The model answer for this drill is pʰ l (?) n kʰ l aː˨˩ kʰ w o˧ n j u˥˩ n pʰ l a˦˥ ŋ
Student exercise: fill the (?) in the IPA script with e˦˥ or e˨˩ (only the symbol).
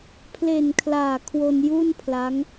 e˨˩